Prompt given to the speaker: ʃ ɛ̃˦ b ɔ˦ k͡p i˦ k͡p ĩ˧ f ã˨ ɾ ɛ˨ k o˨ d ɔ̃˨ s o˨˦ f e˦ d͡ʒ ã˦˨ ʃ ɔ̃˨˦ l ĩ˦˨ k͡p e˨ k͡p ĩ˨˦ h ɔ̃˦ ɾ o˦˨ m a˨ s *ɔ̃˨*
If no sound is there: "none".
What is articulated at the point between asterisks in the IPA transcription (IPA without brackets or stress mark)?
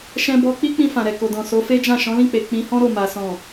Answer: ɔ̃˨